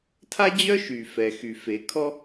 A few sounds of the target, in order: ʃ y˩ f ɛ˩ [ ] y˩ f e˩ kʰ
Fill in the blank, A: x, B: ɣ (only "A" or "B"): A